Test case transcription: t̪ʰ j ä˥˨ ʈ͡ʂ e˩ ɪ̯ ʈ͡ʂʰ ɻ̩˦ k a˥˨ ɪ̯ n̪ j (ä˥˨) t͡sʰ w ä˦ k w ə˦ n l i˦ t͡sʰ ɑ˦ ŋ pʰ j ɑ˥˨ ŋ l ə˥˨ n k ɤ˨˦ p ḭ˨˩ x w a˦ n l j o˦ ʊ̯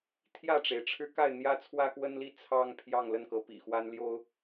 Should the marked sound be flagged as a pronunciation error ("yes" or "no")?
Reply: yes